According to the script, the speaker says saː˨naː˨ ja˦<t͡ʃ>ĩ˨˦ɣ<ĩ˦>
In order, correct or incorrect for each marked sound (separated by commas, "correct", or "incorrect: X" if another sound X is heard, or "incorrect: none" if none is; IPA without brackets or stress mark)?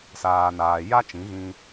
correct, incorrect: ĩ˧